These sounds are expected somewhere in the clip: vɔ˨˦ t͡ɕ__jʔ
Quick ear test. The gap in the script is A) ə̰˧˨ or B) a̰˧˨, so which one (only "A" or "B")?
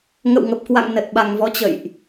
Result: A